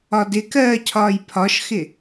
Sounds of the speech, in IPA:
ɒ d ɪ k ɜː cʰ ɒː j pʰ ɒ ʃ x ɪ

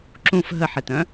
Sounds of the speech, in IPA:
ǁ ũ f ɦ ə ħ e t œ̃

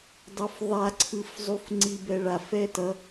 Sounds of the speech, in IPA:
dˤ o f ðˤ a ǀʰ ɯ f zˤ u f ŋ͡ǀ i b ɛ ɭ a f ɛ t ʌ

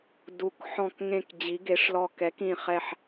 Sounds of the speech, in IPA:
d u˦˨ k ħ ɔ̃˦˨ k ŋ ẽ˦˨ k d͡ʑ i˧˥ ɡ e˧˥ ʂ l ɔ˦˨ k ɛ˧˥ k ĩ˦˨ χ ɛ˦˨ ħ

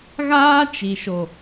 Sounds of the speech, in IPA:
ɣ aː˦ t͡ʃ i˨ ʃ o˨

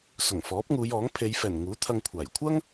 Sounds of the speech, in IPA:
s ʊ˨˩ ŋ f ɔː˨˥ p̚ ŋ uː˨˧ j ɔː˨˥ ŋ pʰ e˨˧ j f ɛː˨˩ n ŋ uː˨˥ t̪ʰ ɐ˧ ŋ kʷʰ aː˨˩ j kʷʰ ɐ˥ ŋ

